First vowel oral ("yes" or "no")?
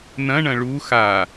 no